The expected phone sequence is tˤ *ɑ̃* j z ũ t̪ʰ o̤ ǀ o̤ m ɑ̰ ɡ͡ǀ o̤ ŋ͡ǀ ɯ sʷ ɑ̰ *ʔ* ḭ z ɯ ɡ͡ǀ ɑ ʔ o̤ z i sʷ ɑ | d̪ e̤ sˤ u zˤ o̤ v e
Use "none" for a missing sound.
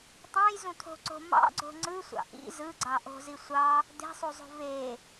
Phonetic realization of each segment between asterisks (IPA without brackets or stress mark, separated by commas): ɑ̃, ʔ